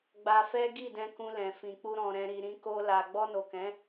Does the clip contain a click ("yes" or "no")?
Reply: no